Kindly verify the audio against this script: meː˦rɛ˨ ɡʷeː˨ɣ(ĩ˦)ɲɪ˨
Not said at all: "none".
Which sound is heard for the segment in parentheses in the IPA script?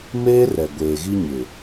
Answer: i˦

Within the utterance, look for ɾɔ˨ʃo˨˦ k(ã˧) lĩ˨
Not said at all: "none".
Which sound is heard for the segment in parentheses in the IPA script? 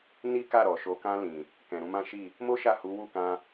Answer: ã˧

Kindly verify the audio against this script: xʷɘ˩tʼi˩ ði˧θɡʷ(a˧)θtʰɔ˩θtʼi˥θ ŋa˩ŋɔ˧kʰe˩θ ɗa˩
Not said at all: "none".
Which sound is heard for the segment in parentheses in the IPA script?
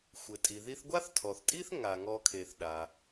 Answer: a˥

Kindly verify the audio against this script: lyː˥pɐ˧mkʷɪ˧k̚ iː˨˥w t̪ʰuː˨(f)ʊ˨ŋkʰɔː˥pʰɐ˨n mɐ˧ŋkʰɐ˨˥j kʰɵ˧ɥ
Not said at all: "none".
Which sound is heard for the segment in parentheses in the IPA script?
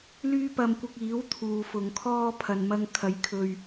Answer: f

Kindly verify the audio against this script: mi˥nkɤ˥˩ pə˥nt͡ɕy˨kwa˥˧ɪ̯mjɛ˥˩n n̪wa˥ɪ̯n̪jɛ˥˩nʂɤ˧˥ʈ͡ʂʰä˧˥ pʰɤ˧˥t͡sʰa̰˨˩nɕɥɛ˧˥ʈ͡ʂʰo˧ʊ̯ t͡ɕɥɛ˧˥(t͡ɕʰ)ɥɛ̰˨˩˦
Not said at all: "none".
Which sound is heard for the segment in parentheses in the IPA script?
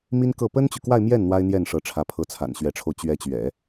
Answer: t͡ɕ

